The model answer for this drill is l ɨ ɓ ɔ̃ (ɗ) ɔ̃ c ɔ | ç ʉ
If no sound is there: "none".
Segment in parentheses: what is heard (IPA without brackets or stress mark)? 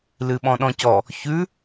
ɗ